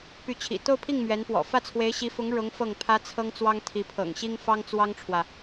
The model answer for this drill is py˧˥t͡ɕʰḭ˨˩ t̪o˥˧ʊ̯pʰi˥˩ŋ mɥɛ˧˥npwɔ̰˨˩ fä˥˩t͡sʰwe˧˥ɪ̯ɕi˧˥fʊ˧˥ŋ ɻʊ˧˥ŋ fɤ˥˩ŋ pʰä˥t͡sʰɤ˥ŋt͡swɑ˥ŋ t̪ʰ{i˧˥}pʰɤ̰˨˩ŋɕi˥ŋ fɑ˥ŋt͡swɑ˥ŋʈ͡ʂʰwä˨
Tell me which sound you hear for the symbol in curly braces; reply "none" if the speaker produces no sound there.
i˧˥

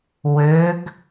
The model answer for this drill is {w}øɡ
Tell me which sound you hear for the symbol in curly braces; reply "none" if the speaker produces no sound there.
w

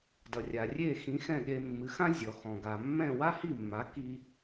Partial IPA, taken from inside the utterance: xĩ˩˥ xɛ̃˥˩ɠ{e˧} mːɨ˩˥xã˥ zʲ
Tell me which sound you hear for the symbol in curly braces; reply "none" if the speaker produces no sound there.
e˧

